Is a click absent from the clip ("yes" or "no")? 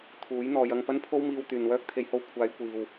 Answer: yes